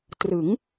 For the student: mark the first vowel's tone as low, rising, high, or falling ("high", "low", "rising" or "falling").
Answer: rising